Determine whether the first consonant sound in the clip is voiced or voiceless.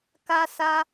voiceless